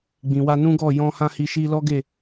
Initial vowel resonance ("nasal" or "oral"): nasal